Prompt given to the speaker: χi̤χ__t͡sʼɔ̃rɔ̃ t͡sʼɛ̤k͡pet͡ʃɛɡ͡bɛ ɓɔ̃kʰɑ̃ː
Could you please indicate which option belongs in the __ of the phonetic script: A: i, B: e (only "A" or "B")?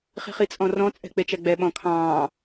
A